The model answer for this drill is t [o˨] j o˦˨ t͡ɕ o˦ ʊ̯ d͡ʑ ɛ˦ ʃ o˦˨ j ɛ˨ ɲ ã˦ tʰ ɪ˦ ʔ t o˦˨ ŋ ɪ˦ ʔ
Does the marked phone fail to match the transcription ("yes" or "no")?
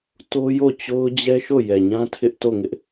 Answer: yes